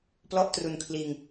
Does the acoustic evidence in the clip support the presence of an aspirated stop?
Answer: yes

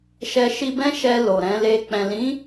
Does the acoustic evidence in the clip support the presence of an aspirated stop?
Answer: no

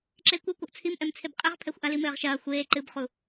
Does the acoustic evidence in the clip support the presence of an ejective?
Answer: yes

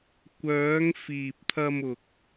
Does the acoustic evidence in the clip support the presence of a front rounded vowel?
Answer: yes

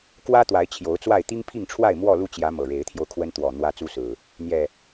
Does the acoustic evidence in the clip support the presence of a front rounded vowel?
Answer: no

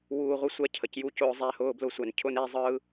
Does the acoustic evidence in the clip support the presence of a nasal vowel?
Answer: no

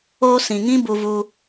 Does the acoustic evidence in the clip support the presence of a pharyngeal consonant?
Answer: no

